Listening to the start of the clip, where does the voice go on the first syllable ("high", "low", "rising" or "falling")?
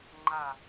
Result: low